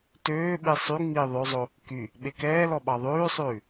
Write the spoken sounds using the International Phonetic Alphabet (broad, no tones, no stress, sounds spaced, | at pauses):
t øː ɓ i sˤ y ŋ͡m i ðˤ ø zˤ o | k y | ɓ e k ɛː l ɔ ɓ ɑ ðˤ ʉː sˤ ʉː